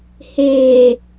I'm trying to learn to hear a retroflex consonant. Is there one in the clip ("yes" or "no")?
no